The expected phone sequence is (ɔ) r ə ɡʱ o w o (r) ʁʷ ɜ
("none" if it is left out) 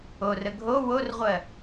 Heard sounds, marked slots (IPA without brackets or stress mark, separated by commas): o, r